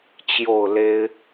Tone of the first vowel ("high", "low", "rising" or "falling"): falling